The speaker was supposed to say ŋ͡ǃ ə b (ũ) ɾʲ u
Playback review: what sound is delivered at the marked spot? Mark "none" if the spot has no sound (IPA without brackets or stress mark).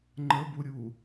u